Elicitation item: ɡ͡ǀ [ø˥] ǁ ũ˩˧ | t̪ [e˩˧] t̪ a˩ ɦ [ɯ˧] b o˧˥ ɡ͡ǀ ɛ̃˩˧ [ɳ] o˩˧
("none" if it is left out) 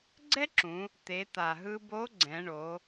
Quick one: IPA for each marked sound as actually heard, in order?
ɛ˥, e˩˧, ɯ˧, ɳ

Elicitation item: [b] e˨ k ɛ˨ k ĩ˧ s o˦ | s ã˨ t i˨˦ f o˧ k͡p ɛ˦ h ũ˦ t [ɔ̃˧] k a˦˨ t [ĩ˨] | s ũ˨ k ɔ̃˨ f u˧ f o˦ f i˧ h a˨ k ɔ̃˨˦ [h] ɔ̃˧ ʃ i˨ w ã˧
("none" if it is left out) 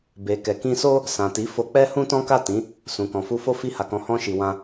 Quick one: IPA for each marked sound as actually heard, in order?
b, ɔ̃˦, ĩ˨˦, h

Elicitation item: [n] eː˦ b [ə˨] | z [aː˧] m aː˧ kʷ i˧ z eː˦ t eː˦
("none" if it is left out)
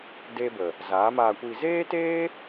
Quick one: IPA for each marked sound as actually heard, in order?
d, ə˨, aː˨˦

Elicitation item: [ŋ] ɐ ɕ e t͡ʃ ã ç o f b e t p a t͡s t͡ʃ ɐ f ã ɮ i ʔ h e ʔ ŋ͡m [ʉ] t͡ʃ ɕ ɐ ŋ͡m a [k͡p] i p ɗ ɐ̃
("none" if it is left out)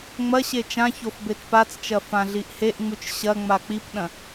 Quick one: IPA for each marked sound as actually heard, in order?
ŋ͡m, ʉ, k͡p

